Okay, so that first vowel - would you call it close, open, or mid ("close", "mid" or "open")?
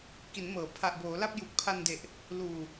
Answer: close